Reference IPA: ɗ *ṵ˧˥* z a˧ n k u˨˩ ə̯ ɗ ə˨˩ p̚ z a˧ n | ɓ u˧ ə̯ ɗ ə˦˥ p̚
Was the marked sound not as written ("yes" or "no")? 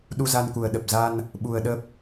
yes